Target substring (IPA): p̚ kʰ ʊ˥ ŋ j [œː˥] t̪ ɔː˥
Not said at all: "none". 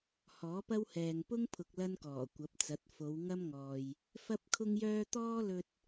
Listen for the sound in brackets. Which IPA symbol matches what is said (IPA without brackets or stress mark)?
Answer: œː˥